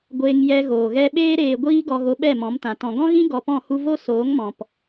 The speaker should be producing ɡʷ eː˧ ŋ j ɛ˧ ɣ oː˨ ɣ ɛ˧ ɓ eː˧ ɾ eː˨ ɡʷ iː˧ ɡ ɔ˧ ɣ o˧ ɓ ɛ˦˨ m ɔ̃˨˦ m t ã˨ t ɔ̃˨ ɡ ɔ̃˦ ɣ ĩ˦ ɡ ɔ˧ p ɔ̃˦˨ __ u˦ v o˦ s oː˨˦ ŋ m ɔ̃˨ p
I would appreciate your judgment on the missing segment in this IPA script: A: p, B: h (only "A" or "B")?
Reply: B